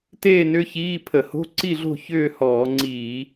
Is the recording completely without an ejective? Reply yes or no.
yes